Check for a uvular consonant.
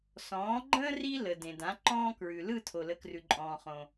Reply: present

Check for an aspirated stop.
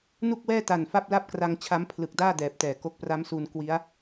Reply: present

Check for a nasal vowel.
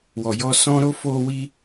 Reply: present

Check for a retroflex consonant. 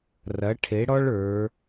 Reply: present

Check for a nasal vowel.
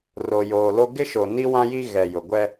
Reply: present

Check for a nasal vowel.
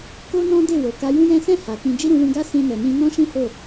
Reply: present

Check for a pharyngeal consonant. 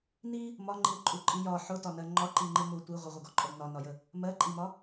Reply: present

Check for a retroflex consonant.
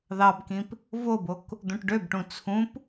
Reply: present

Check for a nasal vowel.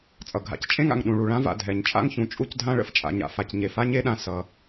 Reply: present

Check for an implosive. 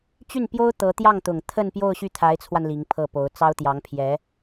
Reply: absent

